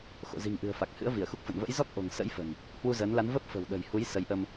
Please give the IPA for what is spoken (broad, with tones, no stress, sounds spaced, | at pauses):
x o̰˧˨ z i̤˨˩ ŋ ʔ ɨ̤˨˩ ə̯ f a˨˩ k̚ h ɨ̰˧˥ ə̯ v i˧˩ ə̯ x u˦˥ k̚ f ə̰˧˨ n v ə̰˧˥ j z ɔ˦˥ k̚ ʔ o̤˨˩ ŋ s ə̰˧˥ j f ə̤˨˩ n | h w u˧ z əː˨˦ n l a˨˦ n v ə˦˥ p̚ f ə̤˨˩ w ɗ ə̤˨˩ j h u˨˦ j s ə˨˦ j ʔ ə˧ m